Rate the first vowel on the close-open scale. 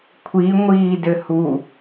close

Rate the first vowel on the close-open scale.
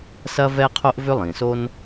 open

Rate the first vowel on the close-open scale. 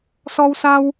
mid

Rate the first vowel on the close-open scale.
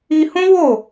close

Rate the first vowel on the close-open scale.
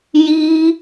close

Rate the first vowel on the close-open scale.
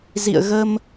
close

